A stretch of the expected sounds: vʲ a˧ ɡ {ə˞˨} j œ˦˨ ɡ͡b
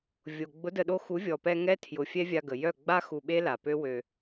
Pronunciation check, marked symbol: incorrect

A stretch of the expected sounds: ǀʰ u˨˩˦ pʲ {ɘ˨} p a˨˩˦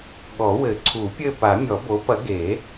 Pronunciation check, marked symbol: incorrect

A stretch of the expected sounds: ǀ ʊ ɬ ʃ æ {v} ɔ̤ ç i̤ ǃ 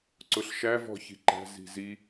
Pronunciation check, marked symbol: correct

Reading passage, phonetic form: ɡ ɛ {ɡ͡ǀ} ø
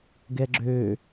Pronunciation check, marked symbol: incorrect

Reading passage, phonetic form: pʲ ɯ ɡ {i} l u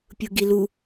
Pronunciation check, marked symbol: correct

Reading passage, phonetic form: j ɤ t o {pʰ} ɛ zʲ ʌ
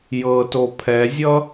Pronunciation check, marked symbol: correct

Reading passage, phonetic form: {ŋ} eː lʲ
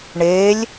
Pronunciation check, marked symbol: incorrect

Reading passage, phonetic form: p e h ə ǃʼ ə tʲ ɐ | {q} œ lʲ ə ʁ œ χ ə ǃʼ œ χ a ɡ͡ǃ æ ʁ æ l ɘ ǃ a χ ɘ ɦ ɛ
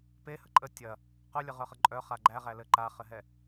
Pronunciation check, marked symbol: correct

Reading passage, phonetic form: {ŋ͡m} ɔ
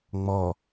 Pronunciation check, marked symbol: correct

